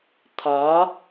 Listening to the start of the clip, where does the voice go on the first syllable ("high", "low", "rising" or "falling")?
rising